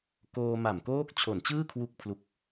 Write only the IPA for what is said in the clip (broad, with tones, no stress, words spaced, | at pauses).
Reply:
koː˧ma˨˩mkoː˦˥k̚ t͡ɕʰo˨˩nt͡ɕɯː˥˩kʰwu˦˥k̚ pʰlu˦˥k̚